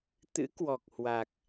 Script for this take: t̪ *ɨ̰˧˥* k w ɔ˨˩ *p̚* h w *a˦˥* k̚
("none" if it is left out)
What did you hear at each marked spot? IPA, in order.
ɨ̰˧˥, k̚, a˨˩

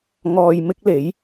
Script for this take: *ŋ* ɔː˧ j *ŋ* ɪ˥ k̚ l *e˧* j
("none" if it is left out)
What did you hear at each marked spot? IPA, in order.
ŋ, m, e˨˥

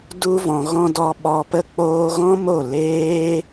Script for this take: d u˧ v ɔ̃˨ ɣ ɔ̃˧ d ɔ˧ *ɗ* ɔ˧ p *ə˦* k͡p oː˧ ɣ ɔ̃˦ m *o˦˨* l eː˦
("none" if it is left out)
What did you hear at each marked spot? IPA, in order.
ɓ, ə˦, o˦˨

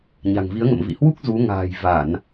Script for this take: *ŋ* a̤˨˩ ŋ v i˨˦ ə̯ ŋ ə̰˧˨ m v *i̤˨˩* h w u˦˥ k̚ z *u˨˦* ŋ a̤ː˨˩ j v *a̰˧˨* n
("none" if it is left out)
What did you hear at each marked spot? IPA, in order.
ɲ, ḭ˧˨, u˨˦, a˧˩˨

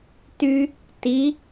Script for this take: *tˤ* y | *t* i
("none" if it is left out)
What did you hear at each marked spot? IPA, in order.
t, t

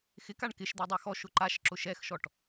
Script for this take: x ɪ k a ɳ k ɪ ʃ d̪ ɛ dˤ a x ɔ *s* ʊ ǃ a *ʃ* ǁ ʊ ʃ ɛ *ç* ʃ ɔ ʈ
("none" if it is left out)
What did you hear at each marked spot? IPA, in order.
ʃ, ʃ, x

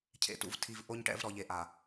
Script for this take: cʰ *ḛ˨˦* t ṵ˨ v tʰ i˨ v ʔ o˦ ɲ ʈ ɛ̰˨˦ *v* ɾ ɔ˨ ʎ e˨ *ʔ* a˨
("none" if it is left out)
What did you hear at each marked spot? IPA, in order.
ḛ˨, v, ʔ

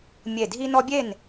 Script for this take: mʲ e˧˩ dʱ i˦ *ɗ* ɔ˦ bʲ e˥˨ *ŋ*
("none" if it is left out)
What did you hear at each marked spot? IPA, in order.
n, n

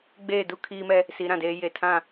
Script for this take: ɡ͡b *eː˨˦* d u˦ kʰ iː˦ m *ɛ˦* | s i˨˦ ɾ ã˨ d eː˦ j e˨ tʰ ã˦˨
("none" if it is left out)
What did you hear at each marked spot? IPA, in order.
eː˦˨, ɛ˦

